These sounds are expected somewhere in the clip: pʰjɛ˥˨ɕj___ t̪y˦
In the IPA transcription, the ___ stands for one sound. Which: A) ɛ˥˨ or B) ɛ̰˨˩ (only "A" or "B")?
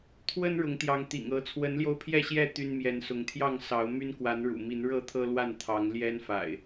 A